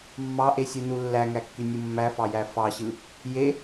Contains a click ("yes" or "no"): no